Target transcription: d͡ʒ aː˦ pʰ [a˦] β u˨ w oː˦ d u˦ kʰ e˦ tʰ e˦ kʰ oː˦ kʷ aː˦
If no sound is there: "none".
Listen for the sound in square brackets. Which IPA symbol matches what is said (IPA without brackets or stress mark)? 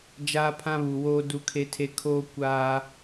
ã˦